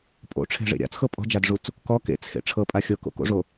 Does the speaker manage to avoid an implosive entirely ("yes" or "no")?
yes